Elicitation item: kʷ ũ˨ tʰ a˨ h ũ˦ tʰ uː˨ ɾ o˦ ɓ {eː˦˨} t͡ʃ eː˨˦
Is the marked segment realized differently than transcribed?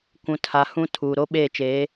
no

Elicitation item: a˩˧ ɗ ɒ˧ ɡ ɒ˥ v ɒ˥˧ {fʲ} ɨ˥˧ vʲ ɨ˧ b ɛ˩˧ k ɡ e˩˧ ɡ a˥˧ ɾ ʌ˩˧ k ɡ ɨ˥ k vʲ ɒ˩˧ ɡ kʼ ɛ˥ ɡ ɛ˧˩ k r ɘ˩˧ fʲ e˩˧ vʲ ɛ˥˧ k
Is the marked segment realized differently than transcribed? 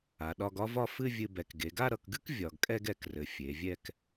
yes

